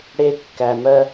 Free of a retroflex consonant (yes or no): no